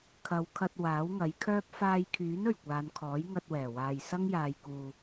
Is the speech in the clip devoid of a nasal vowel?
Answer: yes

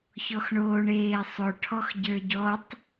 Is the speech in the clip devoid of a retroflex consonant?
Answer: no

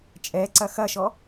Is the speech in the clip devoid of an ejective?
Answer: no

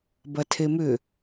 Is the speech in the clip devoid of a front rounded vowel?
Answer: no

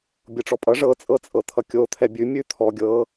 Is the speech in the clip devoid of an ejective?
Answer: no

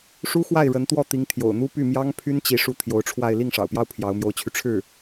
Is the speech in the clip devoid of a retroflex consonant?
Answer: no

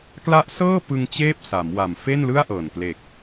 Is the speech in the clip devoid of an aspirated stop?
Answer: yes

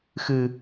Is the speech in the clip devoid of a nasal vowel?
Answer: yes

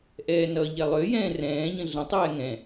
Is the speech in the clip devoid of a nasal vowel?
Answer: no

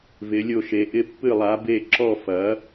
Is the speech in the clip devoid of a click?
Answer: no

